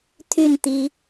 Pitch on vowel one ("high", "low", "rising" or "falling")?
falling